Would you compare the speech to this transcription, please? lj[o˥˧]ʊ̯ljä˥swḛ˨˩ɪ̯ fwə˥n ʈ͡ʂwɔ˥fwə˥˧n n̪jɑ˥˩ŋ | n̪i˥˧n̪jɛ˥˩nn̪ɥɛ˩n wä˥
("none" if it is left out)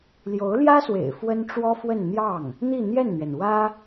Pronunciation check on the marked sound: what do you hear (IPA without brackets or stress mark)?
o˧˥